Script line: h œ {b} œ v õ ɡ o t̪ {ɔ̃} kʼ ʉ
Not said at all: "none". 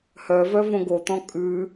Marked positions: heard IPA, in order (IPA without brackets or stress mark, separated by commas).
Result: v, ɔ̃